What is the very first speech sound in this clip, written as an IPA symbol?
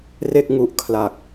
r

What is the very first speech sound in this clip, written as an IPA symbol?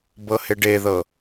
b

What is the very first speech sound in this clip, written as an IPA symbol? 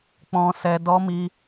k͡p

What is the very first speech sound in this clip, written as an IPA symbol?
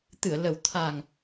t̪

